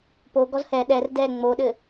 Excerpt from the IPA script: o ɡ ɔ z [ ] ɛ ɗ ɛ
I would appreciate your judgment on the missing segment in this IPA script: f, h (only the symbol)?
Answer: h